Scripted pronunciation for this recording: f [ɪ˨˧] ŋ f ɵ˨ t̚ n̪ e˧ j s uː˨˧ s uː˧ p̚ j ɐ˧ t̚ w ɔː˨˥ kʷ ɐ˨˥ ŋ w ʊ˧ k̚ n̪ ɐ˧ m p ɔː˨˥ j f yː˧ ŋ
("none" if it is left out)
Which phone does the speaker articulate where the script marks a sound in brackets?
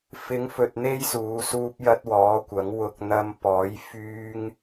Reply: ɪ˨˧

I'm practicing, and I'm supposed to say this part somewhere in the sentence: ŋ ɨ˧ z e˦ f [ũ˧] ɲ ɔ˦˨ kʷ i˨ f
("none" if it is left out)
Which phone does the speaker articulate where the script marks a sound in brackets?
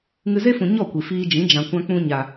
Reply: ũ˨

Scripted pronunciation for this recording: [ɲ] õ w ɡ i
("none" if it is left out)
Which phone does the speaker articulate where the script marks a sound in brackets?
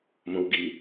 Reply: m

